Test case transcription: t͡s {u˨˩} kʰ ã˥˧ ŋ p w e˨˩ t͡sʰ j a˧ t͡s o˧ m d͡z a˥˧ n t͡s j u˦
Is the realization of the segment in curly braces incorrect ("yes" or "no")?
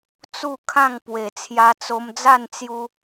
yes